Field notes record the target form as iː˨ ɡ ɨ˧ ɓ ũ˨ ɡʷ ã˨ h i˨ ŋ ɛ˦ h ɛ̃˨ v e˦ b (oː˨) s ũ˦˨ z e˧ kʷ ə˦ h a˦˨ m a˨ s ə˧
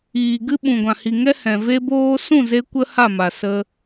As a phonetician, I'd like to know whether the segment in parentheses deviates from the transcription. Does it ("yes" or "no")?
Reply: yes